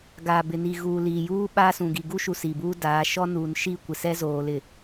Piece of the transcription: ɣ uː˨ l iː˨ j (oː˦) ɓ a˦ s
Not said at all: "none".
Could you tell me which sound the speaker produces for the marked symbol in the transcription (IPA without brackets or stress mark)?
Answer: uː˦